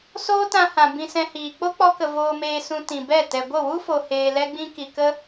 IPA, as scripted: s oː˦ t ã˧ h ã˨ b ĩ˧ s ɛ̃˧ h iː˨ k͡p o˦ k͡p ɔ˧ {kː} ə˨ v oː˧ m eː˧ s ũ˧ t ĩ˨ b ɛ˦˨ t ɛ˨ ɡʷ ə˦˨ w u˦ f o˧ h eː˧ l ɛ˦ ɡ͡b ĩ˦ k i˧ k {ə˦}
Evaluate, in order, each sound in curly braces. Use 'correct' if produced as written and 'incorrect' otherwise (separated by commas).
incorrect, correct